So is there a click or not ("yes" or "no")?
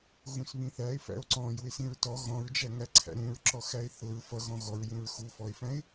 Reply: yes